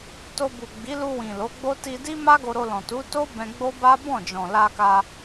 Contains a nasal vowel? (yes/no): yes